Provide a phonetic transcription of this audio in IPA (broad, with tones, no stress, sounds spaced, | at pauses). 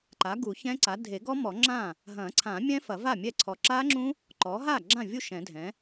ǃ a˩˥ ɡ u˨˩˦ ç ɛ̃˦˥ ǀ a˩˥ dʱ e˨˩˦ ɡ ɔ˦˥ m ɔ˨˩˦ ŋ͡ǁ ã˥˩ | ɦ ɐ̃˨˩˦ ǀʰ ã˨˩˦ mʲ ɛ̃˦˥ f ɐ˨˩˦ v a˥˩ mʲ ɛ˥˩ ǀʰ ɔ˨ ǁ a˦˥ ŋ͡ǁ ũ˦˥ | ǃ ɔ˩˥ ɦ a˥˩ ɡ͡ǁ ã˥˩ vʲ u˥˩ ʃ ɛ̃˨˩˦ dʱ ɛ̃˩˥